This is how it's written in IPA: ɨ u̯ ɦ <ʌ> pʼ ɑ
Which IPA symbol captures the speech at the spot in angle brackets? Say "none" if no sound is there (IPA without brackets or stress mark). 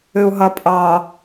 ʌ